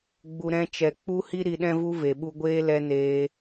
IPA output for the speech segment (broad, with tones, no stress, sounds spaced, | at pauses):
ɡ͡b u˨ ɾ ɛ̃˧ t͡ʃ ɛ˨ k͡p u˦ h i˦ ɾ i˧ ɗ ɛ̃˦ v u˦ v e˨ ɓ u˧ ɡʷ eː˦ l ɛ˦ n eː˧